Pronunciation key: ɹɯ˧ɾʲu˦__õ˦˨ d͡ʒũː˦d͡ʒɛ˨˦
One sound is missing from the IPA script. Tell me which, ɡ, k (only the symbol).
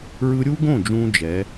ɡ